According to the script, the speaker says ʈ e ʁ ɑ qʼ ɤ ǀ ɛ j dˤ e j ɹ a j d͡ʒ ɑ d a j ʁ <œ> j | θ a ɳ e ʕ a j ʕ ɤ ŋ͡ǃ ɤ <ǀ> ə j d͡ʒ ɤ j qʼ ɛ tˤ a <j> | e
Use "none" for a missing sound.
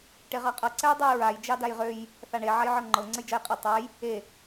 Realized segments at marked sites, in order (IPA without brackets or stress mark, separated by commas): ø, ŋ͡ǀ, j